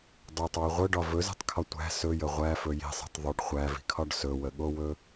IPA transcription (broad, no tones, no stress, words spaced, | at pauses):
dˤotˤwɵ ʁʷœɖɒ vɵzi̤tˤkʰɒ tʷæ̤ sɵjə ʁʷæfɵ ji̤sˤi̤tˤ ðˤɵɖ χʷævi̤kʰɒɖ sɵwəɠowɵ